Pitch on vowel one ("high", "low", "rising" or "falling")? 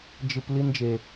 low